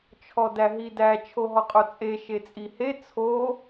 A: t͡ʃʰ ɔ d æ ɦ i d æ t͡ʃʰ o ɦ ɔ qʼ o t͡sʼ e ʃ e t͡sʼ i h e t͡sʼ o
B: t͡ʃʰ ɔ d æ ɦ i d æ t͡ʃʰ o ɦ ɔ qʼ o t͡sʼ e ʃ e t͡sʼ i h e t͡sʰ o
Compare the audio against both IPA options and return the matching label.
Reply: B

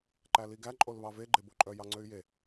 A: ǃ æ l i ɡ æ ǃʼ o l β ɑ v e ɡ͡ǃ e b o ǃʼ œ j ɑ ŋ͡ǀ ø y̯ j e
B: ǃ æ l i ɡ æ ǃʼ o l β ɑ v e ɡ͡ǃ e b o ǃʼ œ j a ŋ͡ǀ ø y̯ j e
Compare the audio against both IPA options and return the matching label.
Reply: A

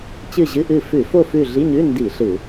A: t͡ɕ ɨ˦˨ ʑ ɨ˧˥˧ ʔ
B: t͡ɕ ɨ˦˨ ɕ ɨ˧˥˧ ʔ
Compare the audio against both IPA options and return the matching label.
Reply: A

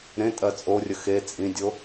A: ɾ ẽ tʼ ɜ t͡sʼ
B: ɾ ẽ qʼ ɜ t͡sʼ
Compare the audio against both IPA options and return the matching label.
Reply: A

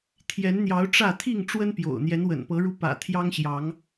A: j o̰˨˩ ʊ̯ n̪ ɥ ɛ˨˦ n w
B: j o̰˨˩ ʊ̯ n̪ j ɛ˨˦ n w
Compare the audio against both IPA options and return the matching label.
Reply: B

